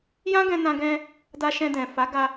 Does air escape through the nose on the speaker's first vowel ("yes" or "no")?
yes